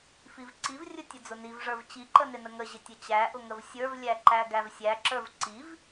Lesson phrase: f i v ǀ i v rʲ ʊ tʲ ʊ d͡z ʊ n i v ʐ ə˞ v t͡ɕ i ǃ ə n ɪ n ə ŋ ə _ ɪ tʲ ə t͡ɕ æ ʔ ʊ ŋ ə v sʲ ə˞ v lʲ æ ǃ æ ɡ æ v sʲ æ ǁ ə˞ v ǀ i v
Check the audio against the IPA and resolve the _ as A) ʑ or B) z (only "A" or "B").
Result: A